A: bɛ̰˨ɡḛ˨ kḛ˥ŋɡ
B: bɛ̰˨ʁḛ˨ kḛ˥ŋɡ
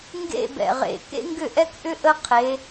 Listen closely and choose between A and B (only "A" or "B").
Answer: B